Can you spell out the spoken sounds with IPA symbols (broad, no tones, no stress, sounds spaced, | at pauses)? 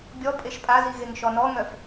bʲ ɔ pʼ e ʃ pʼ a z i ɣ e ŋ ʃ ɔ n ɔ ŋ œ f